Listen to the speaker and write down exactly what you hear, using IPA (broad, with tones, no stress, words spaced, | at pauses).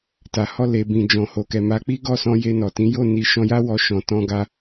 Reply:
ta˨hɔ˧ le˨bĩ˨ d͡ʒɔ̃˨ho˨ kɛ˨ma˨˦k͡pi˦ ɡɔ˦˨sɔ̃˧ je˧nɔ˨tĩ˨˦ jo˦˨ni˨ ʃɔ̃˧ja˦ wɔ˧ʃɔ̃˨ tɔ̃˧ɡa˧